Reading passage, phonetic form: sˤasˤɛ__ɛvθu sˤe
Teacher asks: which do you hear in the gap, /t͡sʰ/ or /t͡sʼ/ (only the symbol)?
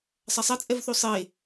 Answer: t͡sʼ